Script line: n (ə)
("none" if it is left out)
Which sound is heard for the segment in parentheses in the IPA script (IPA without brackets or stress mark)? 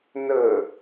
ə